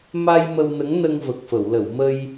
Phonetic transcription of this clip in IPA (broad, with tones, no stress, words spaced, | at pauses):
ma˧j mə˧wnə˧˥ŋ nə˧ŋvə˨˩k̚fə˨˩˨wlə˨˩˨w mə˧j